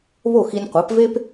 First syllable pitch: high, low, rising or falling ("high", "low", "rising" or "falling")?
falling